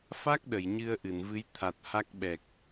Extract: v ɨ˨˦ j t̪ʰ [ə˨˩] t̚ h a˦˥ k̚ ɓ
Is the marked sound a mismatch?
yes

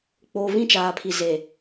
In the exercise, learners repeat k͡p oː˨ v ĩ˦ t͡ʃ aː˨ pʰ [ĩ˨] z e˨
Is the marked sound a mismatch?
yes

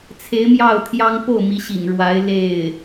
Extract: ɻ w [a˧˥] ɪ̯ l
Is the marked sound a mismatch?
no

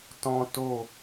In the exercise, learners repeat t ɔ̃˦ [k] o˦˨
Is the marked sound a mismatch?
yes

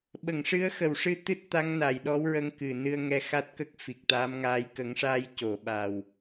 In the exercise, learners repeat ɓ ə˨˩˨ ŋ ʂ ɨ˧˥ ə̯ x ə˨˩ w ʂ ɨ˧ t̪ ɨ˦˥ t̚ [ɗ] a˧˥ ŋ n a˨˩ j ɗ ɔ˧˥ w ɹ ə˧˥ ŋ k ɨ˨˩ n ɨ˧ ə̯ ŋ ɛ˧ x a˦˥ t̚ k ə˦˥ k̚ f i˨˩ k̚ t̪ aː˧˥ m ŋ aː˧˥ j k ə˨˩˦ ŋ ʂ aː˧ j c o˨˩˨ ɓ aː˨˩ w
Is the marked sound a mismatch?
yes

